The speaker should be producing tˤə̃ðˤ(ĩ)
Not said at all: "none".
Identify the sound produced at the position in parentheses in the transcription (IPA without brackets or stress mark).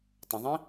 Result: ĩ